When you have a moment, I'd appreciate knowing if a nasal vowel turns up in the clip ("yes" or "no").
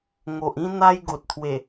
yes